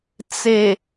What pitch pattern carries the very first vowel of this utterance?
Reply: low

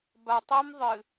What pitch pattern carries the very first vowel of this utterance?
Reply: low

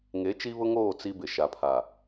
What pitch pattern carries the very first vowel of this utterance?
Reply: rising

